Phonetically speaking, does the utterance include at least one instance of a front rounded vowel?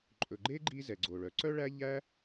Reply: yes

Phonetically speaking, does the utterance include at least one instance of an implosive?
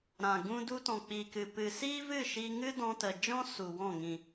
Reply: no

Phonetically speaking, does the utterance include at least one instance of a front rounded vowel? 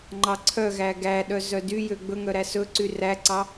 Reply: yes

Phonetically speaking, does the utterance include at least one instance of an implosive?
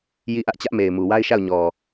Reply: no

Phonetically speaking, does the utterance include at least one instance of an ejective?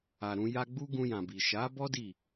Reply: no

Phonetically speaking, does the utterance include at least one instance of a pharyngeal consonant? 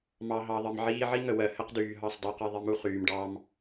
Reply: yes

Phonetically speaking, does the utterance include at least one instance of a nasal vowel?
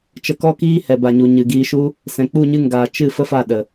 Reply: yes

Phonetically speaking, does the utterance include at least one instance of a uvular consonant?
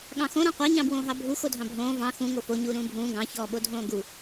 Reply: yes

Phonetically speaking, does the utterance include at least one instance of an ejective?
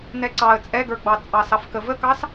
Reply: yes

